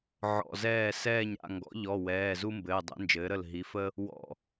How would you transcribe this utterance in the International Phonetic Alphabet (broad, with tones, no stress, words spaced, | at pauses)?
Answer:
ʕɔ̰˩˧˩zɛː˧˩ sɛː˧˩ɲɾa̰˧˩ ŋɡɔ̰˩˥ʎɔ˩˧˩ wɛː˩˧˩zu˦ mbɘː˩˧˩dˤɛ̰˩˥nd͡ʒɘː˩˥ ɾə˧˩lɦi˩˥fə˦ | wɔ̰˧˩